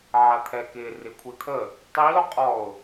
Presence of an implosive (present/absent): absent